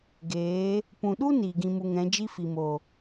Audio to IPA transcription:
ɡ eː˨˦ | p ũ˨ ɗ u˦ n iː˨ ɡ ĩ˧ m u˧ ŋ ɛ̃˨˦ d͡ʒ i˦ f i˨ m o˨

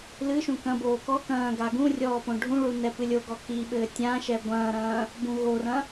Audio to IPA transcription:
l ɨ ʃ ũ k ɐ̃ b oː k ɔ k ɐ̃ː ɡ a ɡ ũ rʲ ɔː p õ ɖʱ ũ ɭ u n ɛ p ɨ lʲ o ɡ ɔ k i ɓ ɘː tʲ ã ʃ ɛ ɡʷ ɐ̃ː ɾ ɐ̃ː | b ũ ɣ o r ɐ̃

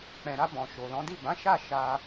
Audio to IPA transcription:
k͡p ɛ̃˨ ɾ a˧ b ɔ̃˨ ʃ o˨ l ɔ̃˨˦ d i˦˨ b ã˨˦ ʃ a˦˨ ʃ a˧

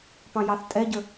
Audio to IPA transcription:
p ɑ̃ j ɑ θ tʼ ɛ ɟ ə

